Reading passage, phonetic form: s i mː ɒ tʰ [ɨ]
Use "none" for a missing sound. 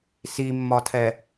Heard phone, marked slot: ɛ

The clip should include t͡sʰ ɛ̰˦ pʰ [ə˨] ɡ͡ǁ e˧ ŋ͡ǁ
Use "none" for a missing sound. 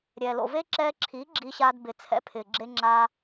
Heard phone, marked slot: ɪ˨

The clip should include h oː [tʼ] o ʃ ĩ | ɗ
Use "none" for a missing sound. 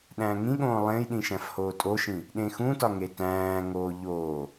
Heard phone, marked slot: tʼ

